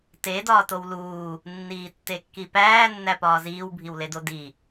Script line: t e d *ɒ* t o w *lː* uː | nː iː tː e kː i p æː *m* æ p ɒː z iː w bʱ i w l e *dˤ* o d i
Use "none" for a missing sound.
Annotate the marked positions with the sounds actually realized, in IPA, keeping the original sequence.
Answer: ɒː, l, nː, d

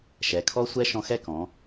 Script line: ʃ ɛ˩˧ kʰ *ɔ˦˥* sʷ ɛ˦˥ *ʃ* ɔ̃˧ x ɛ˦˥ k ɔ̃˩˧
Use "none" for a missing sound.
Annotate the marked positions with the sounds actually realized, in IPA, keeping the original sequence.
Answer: ɔ˦˥, ʃ

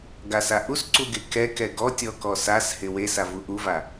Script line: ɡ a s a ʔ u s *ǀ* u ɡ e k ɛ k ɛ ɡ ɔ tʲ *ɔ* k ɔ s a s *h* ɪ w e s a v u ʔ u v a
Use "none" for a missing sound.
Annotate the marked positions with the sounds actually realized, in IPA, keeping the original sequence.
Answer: ǀ, ɔ, h

